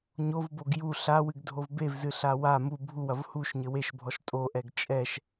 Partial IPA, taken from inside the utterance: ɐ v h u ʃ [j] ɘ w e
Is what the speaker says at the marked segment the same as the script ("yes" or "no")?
no